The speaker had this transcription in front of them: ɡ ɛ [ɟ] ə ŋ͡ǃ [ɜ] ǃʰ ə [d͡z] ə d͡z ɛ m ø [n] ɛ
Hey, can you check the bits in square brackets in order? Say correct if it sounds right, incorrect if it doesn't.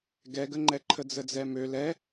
incorrect, incorrect, correct, incorrect

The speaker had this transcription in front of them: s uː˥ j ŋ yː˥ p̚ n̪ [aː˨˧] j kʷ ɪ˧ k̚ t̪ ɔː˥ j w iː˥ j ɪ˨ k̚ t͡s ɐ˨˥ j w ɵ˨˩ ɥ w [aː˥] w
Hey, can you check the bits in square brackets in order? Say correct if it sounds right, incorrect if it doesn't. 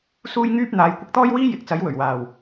correct, incorrect

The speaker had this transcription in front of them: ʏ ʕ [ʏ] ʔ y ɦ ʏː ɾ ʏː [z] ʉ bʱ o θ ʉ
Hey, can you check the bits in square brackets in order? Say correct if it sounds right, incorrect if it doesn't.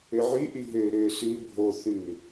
incorrect, incorrect

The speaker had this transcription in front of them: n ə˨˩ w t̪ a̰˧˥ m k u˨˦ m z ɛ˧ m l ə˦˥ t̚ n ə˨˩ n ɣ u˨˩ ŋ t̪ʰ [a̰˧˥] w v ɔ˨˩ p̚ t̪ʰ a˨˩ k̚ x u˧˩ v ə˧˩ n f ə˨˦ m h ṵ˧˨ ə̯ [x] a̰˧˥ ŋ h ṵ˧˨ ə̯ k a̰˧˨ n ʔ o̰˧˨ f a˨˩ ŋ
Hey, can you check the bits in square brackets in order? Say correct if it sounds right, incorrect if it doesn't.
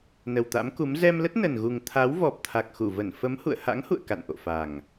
incorrect, incorrect

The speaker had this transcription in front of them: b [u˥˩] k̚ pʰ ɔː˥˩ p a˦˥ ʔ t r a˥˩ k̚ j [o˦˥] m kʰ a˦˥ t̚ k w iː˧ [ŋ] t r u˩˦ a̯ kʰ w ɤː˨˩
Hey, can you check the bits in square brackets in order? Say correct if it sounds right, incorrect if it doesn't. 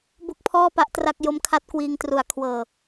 incorrect, correct, correct

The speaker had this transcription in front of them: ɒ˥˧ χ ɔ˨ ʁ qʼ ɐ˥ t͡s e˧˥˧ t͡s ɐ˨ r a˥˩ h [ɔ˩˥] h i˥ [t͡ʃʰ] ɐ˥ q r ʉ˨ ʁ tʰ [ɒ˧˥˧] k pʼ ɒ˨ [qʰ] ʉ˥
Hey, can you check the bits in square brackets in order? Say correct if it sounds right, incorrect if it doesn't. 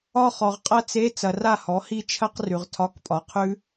correct, correct, correct, correct

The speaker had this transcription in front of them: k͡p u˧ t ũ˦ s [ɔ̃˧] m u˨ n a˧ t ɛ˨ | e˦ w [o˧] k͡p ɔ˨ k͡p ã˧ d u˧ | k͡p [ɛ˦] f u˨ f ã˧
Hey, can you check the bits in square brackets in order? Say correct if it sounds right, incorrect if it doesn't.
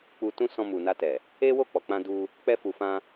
correct, incorrect, incorrect

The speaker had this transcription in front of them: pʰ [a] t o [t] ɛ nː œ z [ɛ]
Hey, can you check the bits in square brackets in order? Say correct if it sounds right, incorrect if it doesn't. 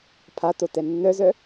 correct, correct, incorrect

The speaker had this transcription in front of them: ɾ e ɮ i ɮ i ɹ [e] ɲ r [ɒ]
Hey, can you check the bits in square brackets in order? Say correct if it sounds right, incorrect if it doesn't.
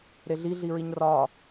incorrect, correct

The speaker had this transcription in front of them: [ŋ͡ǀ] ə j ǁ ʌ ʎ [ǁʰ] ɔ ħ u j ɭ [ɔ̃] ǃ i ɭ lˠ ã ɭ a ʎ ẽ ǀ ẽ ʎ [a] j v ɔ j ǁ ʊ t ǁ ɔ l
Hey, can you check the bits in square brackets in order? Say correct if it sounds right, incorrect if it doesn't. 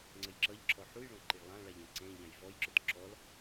correct, correct, correct, incorrect

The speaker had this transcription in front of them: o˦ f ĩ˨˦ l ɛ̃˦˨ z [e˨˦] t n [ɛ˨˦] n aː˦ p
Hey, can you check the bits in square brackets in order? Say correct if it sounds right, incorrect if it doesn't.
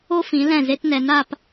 incorrect, correct

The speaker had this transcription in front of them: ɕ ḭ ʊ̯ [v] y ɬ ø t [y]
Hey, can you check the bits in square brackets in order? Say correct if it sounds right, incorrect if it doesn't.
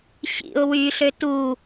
incorrect, incorrect

